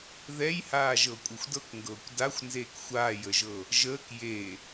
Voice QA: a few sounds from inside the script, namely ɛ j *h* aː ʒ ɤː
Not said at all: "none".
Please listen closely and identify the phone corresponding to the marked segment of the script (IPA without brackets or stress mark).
h